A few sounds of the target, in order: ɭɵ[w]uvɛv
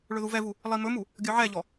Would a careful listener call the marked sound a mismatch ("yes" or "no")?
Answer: yes